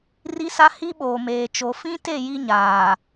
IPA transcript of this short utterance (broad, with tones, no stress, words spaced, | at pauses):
ri˦sa˦ hi˦ɓoː˨meː˨t͡ʃo˨ fĩ˦te˦˨ ji˦ɲaː˨